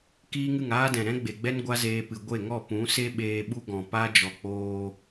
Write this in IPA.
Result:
kiː˦ŋɨ˦˨ŋaː˦ dɛ̃˨ɾɛ̃˦ɡ͡be˨ɡ͡bɛ˦n ɡʷa˦zeː˧pɨ˨ ɡʷe˦˨ŋɔ˦˨ pũ˨˦se˦ ɓeː˧ɓu˦ɡɔ̃˨ pa˦d͡ʒɔ˨k͡poː˧

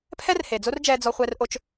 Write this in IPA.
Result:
pʰɛ˦rhe˨d͡zo˦rd͡ʒɛː˧ d͡zɔ˦χʷɛ˦rʔo˦t͡ʃ

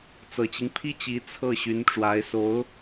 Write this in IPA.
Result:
t͡sɤ˨˩t͡ɕi˦ŋ pʰi˥˩t͡ɕi˧˥ t͡sʰɤ˥˩ɕy˧˥nʈ͡ʂwa˧˥ɪ̯so˧˥ʊ̯

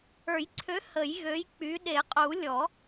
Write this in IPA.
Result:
ə˞˨˩˦jǀʰø˨˥ hə˨˩˦j ɣø˨˥jk͡py˨˥ ɗe˨˩˦qʼu˨˩˦lʲɔ˨˩˦

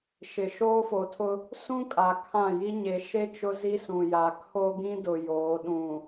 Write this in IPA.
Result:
ʃɪ˨ʃoː˦fo˨tʰʊ˦ | sũ˦kʼa˨ kʰã˦˨ji˦ ɲe˨ ʃe˦ t͡ʃʊ˦zi˦sũ˨ja˨ kʰo˦ɡĩ˦dʊ˨ joː˨˦ɗũ˨

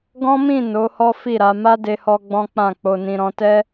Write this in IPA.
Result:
ɡɔ̃˦mĩ˦˨ no˨˦hɔ˦fi˦˨ɾa˧ ma˦de˧hɔ˧ ɡ͡bɔ̃˦k͡pã˦˨k͡po˧nĩ˧ ɾɔ̃˧tɛ˦

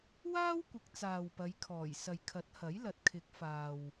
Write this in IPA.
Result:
waː˥wkʷɪ˨˥k̚ t͡saː˨wpɐ˨˧jkʰɔː˨˩jsɐ˨j kʰɐ˨˥t̚hɐ˨˥jlɐ˨t̚kʰɪ˨˥k̚ faː˨w

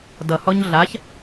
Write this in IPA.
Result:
dʌhɔɲ ɮaç

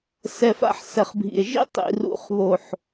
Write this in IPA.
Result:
sɛ˨fa̰˧ħ sɛ˨χbʱḭ˨e̯ʒḭ˦ tˤḭ˨ rṵ˨χβo˨ħ

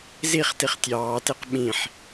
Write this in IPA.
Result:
ziχtiχ tʲɑːteq ɓĩħ

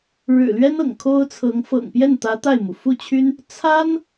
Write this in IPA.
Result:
ɻɻ̩˨˩lɥɛ˥nɤ̰˨˩ŋ kʰo˥ʊ̯t͡sʰɤ˧˥ŋ fɤ̰˨˩ŋpjɛ˥˩nt̪ä˧˥ t̪a˥˩ɪ̯mu˩ fu˥˩t͡ɕʰy˥n | t͡sʰa˥n

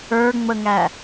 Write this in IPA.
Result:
ə˞ŋ͡məŋæ

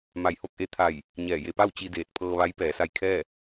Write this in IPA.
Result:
ma˧˩jho˥˨k̚ʔe˧˥ t̪ʰa˧˩j | ɲɛː˧˩je˧pa˥˨w t͡ɕi˧deː˧˩t̚pʰɤː˧ʋa˧˥j pɛː˩˧sa˧jkʰɛː˥˨

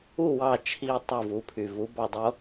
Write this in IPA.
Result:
u˥˨ wɑ˧˩t͡ʃʰi˧˩ tˤu˧˩vu˩˧pʰy˩ vu˩˧bɑ˧˩ dˤo˦

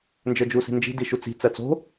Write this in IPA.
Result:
nd͡ʒə˞d͡ʒusi̤nd͡ʒi̤ diʃut͡si̤ t͡sɜt͡so̤

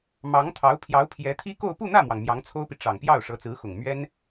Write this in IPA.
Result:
mɑ˧˥ŋt̪ʰɑ˧˥ʊ̯ pʰjɑ˧˥ʊ̯pʰjɛ˧˥t̪ʰi˥ko˥˧ʊ̯ pu˥˧n̪ä˥˩mwɑ˩ŋ mjɑ˧˥ŋt͡sʰo˥ʊ̯pi˨ ʈ͡ʂɑ˨˩ŋpjɑ˥˩ʊ̯ ʂɤ˧˥t͡sɹ̩˧˥xʊ˨˩ŋ mɥɛ˥n

